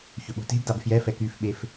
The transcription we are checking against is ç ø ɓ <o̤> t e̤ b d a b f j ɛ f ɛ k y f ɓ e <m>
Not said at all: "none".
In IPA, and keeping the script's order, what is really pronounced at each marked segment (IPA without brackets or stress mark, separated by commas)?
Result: o̤, f